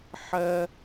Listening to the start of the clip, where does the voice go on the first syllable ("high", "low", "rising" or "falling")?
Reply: high